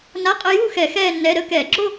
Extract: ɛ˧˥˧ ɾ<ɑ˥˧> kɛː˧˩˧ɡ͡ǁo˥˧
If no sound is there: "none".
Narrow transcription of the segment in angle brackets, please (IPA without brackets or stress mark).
ə˥˧